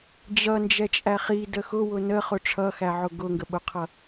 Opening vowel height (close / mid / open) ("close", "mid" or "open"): mid